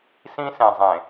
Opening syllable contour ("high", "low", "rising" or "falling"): high